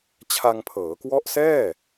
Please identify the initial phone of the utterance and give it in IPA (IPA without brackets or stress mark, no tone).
t͡ɕʰ